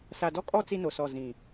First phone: s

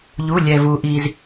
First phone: ʎ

